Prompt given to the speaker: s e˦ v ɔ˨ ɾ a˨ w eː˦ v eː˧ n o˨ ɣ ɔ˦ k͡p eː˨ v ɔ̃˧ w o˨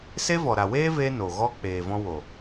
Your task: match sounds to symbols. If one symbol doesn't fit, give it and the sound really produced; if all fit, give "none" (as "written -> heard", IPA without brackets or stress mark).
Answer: none